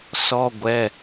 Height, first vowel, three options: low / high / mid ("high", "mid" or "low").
mid